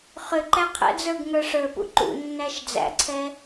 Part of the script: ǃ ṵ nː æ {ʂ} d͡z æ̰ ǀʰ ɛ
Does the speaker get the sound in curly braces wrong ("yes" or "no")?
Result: yes